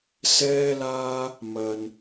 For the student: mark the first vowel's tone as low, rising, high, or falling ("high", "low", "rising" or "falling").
high